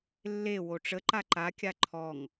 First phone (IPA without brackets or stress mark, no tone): lː